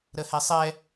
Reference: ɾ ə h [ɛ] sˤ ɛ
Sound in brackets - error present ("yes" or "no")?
no